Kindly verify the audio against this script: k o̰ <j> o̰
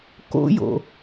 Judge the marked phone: correct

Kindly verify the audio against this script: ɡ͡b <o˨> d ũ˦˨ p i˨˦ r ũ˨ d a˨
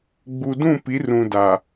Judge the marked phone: incorrect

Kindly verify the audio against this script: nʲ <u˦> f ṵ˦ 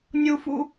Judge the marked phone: correct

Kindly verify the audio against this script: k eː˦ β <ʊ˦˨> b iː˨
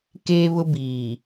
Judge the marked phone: incorrect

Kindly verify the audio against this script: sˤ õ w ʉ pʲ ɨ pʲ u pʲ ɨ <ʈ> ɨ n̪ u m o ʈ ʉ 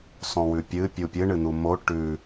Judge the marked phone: incorrect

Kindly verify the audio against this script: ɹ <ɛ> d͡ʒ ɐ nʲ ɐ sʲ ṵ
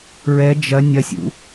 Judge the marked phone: correct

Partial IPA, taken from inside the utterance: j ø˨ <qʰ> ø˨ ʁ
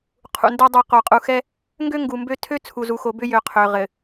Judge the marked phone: correct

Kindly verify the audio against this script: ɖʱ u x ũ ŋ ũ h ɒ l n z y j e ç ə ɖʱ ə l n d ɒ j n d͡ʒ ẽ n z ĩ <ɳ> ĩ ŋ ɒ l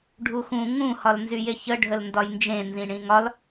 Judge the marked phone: correct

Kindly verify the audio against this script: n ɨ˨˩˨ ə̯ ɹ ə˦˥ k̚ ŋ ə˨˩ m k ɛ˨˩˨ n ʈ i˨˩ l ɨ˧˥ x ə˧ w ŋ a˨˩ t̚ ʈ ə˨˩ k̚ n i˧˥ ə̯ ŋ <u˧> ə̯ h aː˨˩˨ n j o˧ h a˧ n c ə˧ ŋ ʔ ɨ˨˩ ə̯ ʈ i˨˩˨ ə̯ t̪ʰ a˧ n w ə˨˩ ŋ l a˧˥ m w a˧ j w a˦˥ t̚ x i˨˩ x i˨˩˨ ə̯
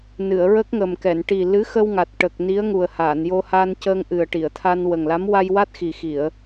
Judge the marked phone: incorrect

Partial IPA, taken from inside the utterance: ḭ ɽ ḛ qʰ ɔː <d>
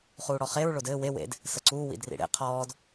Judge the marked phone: correct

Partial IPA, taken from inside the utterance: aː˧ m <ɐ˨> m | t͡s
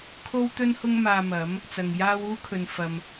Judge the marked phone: incorrect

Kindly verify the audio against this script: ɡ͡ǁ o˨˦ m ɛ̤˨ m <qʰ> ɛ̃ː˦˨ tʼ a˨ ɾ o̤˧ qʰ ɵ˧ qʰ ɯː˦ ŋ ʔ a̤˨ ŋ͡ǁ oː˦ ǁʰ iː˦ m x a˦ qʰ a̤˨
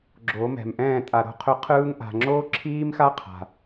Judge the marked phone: incorrect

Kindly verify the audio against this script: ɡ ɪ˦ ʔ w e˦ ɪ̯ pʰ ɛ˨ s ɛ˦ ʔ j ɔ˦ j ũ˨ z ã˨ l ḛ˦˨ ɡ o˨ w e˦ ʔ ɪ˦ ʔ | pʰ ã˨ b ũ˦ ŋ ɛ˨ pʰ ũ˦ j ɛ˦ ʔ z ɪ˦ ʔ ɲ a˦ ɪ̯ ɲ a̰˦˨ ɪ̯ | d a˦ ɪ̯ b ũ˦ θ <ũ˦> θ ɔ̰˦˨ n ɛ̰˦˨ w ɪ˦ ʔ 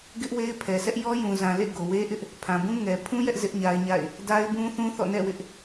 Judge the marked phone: correct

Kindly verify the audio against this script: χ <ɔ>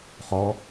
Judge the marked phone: correct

